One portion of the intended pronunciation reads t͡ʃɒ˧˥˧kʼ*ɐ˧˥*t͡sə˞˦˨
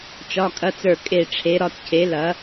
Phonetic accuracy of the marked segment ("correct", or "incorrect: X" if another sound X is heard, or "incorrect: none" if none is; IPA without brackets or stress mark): incorrect: ɐ˧˥˧